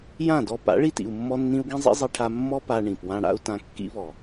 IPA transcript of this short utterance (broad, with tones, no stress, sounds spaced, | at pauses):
j ã˦˨ d ɔ˧ p a̰˨˦ ɭ i˧ t ḭ˨ u̯ mː ɔ˧ nː ĩ˧ u̯ ɡ ĩ˦ zˤ ḭ˦ zˤ i˧ ʈʰ a˧ mː ɔ˦ p a˧ ɳ ĩ˨ p w ã˦ ɽ a̰˦ u̯ t ã˧ kː ḭ˦ β ɔ˨